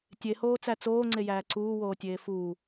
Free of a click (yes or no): no